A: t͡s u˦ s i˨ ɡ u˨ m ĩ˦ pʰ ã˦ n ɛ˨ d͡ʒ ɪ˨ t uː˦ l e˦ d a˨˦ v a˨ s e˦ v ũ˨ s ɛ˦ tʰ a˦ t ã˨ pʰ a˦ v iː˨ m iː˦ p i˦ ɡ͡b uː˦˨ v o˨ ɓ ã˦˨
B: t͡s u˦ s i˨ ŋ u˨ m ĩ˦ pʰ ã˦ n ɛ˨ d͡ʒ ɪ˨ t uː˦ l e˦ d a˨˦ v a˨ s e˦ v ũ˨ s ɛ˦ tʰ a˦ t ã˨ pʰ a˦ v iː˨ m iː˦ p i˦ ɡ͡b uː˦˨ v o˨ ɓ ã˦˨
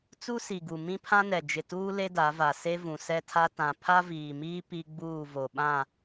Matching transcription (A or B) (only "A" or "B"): A